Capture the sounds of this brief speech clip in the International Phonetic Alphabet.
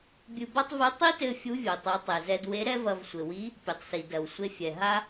bʲɨ˧ba˥tˤvɨ˧˥ tˤi˥tɘ˧ fʲu˧˥vʲo˩tˤu˩˧ tˤe˩zɛ˧dwe˧˥ ɾɛ˥vɐ˧vsʷɘ˩wi˧˥ | pʲɘ˩tˤsi˩dɐ˩wsʷe˧ fʲɛ˩ɦa˥

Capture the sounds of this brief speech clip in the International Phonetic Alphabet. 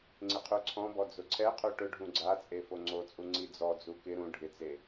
ŋ͡ǀɪqʰuǀʰɔ̃bɔ d͡zʊǀʰɛ qʰuʈʊ ɖʱũɡ͡ǀat͡sʼe foŋ͡ǀot͡sʼu ŋ͡ǀid͡zɔd͡zu kɪ ɾũ ɖʱɪt͡se

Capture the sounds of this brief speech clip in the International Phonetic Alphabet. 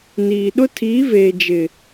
niː˨ ɗʊ˦tʰiː˨˦veː˨ d͡ʒɪ˨

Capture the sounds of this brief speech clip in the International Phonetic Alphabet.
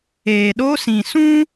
eː˨ɗo˦sĩ˨ sũ˦

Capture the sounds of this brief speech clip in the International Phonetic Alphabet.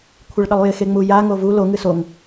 kʷʰɪɭɗʌlˠjɪ xeŋ͡muja ŋovu lo ŋɨsoŋ

